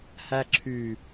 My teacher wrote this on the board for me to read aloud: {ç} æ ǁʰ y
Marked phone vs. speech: incorrect: h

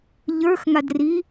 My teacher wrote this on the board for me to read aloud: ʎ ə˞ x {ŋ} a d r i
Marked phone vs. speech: correct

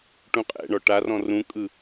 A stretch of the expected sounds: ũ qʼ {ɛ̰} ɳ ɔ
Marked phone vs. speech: correct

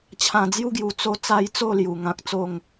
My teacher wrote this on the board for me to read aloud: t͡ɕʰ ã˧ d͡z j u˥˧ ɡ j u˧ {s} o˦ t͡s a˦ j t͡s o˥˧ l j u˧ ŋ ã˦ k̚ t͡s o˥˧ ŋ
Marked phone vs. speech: incorrect: t͡s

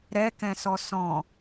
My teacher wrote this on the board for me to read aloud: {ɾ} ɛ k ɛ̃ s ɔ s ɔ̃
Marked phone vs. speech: correct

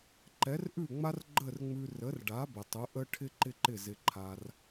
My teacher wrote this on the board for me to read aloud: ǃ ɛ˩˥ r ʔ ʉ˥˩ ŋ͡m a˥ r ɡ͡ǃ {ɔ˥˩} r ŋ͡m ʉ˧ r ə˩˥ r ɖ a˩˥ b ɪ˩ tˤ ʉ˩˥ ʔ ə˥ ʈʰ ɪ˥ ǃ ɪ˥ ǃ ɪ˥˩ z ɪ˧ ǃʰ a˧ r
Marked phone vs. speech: incorrect: ə˥˩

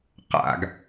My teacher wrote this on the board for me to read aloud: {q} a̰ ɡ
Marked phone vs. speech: correct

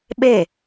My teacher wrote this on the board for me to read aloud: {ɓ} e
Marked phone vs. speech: correct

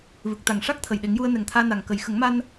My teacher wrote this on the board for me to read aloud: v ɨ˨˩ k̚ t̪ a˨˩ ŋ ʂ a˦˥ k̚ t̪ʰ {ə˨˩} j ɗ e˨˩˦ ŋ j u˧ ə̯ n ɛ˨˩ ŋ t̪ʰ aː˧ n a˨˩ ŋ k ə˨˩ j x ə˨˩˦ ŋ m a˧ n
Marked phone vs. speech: correct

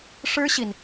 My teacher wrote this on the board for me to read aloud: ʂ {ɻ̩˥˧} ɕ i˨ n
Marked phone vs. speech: incorrect: ɻ̩˥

